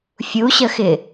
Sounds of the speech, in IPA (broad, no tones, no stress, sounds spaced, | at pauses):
fʲ u ɕ ə x ɪ